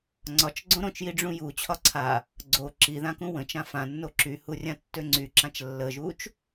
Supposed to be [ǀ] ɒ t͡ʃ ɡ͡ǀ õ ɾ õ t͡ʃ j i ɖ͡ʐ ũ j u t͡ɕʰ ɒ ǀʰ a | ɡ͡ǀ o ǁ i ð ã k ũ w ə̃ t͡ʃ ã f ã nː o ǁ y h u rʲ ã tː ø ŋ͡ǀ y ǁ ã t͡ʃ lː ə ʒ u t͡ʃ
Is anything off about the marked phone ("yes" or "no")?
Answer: yes